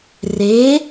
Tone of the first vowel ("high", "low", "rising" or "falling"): rising